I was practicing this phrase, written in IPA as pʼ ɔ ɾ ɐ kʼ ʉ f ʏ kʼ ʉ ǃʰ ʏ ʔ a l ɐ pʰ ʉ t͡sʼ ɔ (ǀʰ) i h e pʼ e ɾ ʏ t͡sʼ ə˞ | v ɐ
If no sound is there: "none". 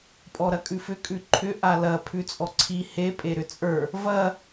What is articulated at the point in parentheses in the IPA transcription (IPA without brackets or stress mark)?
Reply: ǀʰ